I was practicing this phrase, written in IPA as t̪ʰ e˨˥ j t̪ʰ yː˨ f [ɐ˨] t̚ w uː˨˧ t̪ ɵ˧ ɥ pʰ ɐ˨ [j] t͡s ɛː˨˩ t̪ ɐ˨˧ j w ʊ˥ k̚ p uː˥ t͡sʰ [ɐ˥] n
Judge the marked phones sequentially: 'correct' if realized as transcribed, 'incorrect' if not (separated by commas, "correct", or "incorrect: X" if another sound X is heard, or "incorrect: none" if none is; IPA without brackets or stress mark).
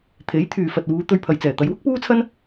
correct, correct, correct